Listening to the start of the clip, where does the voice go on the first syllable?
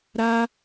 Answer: high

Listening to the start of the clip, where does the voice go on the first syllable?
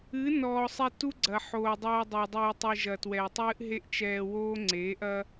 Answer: rising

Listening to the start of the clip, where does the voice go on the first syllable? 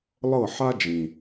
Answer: falling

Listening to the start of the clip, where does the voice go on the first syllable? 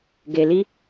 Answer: low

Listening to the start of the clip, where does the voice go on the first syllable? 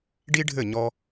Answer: high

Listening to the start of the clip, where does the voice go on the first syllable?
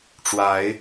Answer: rising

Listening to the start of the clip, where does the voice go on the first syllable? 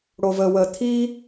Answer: low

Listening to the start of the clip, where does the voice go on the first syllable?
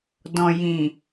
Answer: low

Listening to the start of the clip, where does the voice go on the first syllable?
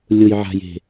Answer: low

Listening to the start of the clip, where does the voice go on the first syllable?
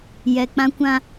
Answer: low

